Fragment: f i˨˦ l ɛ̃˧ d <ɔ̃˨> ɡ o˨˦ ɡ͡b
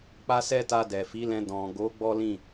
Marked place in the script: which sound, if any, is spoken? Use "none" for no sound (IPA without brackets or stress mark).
ɔ̃˨